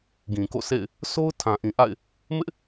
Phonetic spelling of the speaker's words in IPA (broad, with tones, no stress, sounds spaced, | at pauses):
ɡ ĩ˨ k o̰˦˨ sʰ ḛ˦˨ ɪ̯ | s o˦ ʊ̯ tʰ ã˨ ʔ ĩ˨ ʔ a̰˦˨ ɪ̯ | m ɪ˦ ʔ